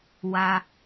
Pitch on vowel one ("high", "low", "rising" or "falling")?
high